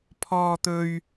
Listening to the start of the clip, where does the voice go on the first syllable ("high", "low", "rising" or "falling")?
high